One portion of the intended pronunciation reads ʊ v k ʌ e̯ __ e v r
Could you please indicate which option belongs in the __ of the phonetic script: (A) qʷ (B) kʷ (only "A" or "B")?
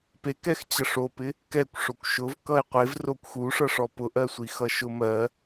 A